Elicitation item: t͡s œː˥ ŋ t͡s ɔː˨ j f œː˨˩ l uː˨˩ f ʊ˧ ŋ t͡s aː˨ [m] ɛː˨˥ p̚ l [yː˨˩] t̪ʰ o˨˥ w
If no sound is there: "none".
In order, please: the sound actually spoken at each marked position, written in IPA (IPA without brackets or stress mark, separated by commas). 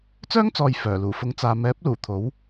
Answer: m, uː˨˩